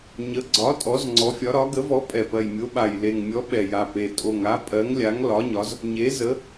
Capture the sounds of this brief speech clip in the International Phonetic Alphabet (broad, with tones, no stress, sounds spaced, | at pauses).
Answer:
ɲ ə˨˥ ɡ͡ǀ ɒ˨˥ tʼ ɔ˨˥ z ŋ͡ǀ ɔ˨˥ fʲ ɒ˨˥ ɾ ɒ˨˥ ɡ ə˨˥ v ɔ˨˥ pʼ ɛ˨˩ p ɜ˨˩ j mʲ o˨˥ ɓ a˨˩ j l e˨˩ ŋ mʲ ɔ˨˥ ɓ ɛ˨˩ j a˨˩ p e˨˩ tʼ o˨˩ ŋ a˨˥ pʼ ɜ˨˥ ŋ lʲ a˨˥ ŋ l ɒ˨˥ ɲ ɒ˨˥ z | ɲ e˨˥ z ə˨˥